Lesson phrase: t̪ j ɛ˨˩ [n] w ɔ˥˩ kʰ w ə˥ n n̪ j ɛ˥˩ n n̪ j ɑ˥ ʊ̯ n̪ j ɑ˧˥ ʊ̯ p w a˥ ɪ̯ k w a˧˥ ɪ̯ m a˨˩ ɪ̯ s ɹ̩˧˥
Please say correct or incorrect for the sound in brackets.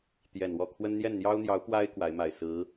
correct